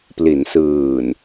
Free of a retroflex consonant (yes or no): yes